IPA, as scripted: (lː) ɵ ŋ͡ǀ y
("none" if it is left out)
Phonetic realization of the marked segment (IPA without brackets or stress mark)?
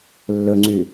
lː